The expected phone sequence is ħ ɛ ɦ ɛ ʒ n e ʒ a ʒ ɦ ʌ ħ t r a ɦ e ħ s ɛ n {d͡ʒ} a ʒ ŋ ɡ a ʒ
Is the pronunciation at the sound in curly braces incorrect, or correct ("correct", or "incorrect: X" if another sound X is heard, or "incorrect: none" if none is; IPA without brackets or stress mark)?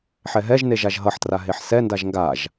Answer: incorrect: d